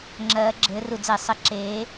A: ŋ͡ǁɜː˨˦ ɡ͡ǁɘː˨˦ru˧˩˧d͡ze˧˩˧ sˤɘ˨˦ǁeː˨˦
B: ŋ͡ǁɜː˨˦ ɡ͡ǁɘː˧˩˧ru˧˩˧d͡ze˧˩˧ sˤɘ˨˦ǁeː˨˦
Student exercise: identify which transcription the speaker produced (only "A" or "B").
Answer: A